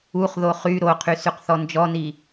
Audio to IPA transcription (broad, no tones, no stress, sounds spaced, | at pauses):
u χ ð o χ y ɾ o qʰ y s y q θ ɔ n d͡ʒ ɔ n i